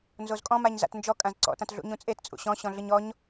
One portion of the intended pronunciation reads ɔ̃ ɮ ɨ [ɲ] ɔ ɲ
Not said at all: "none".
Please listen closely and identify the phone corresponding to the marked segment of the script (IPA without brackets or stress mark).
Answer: ɲ